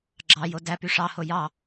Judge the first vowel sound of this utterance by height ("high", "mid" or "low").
low